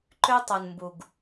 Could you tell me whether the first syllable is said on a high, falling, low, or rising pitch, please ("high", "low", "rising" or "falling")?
high